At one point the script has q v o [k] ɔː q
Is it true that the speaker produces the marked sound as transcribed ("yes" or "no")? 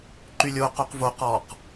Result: no